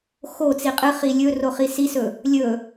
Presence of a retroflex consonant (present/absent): absent